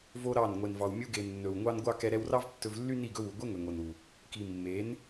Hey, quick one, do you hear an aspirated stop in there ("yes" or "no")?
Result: no